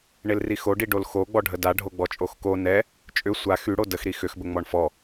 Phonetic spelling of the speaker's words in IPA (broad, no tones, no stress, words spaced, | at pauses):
ɳelrixo ɖiɖolxo ɡ͡bɔɖʱəda ɖʱoɡ͡bɔt͡ʃʼoxko nɛ | t͡ʃʼʏ sʷa xyɽo dəx ɾixʏxbə ŋ͡mɔɳfɔ